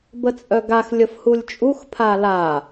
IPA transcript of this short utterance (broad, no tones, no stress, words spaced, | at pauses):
bət͡sʼœɡax lʲəfhulʲt͡ʃʼux pʰala